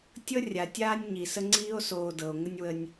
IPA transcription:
tʲ ɤ˦ rʲ a˨ tʲ aː˦ nʲ ɲ i˨ s ə˦ ŋ͡ǀ iː˦ o̯ s oː˨ d ɤ˨ o̯ ŋ ə˦ nʲ w ə˦ nʲ

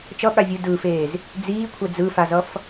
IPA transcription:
t͡ʃ ʌ ɠ a vʲ ɯ d ɯ f eː z | d͡z iː kʷʰ ɛ d͡z ɯ f a z ʌ f

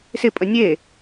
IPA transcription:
s ɪ pʼ ə nʲ e

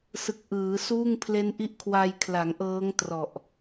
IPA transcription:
s ɯ˨˩ k̚ ʔ ɯː˩˦ s uː˥˩ ŋ pʰ l e˦˥ n ʔ i˦˥ ʔ kʰ w a˧ j kʰ l a˩˦ ŋ ʔ ɤː˦˥ ŋ t r ɔ˨˩ ʔ

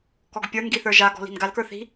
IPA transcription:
k ɔ ɡ pʲ ə˞ n ɡ i θ ə˞ ʒ a ɡ ɔ̤ l i̤ n ɡ a l k ə˞ θ i̤

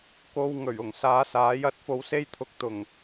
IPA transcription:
k o˨ w ŋ ɵ˨˩ ɥ ʊ˨˩ ŋ s aː˨˧ s aː˨˥ j ɐ˨˥ t̚ f o˧ w s e˥ j t̪ʰ ʊ˨ k̚ t̪ ʊ˨˩ ŋ

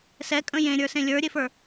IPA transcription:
s ɛ kʼ ə̃ j ẽ ɾʲ ə˞ s ẽ lʲ ə˞ ɾʲ e f ə˞

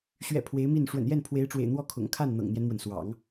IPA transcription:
ɕ ɥ ɛ̰˨˩ pʰ w e˧˥ ɪ̯ m i˥˩ n ʂ w ə̰˨˩ n j ɛ˥˩ n pʰ w e˧˥ ɪ̯ ʈ͡ʂ w ḛ˨˩ ɪ̯ n̪ w ɔ˥˩ kʰ ʊ̰˨˩ ŋ kʰ a˥˩ n n̪ ɤ̰˨˩ ŋ n̪ j ɛ˦ n m w ə˩ n s w ɑ̰˨˩˦ ŋ

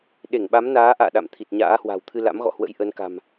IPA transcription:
ɗ e˧˩ ŋ ɓ a˨˦ m n aː˨˦ ʔ a̰ː˧˨ ɗ a̰˧˨ m t̪ʰ i˨˩ t̚ ɲ a̰ː˧˥ h w a̤˨˩ w t̪ʰ ɨ˧ l a̰˧˥ m ɣ ɔ̰˧˨ h w ə̰˧˥ j ʔ ə˨˦ n k a̤˨˩ m

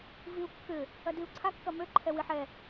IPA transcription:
v i u̯ kː ʏ | ɐ d i u̯ ǀʰ a kː ɐ m ø ǃʰ ɛ w i ħ ɛ

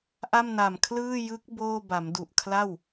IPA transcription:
ʔ a˥˩ m n a˨˩ m kʰ l ɯː˥˩ j ɯ˦˥ k̚ b oː˥˩ b a˩˦ m d u˨˩ ʔ kʰ l a˥˩ w

